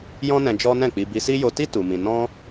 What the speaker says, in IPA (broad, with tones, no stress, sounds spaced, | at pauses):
j ɔ̃˦ n ɛ̃˧ d͡ʒ ɔ˦ n ɛ̃˦˨ k͡p i˧ b i˧ s i˦ j o˧ t i˦ t u˧ m ĩ˧ n ɔ̃˦